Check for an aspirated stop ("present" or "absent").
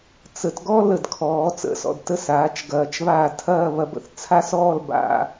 present